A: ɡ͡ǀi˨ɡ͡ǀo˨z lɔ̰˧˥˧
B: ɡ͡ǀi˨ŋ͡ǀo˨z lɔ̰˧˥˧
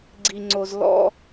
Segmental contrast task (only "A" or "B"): B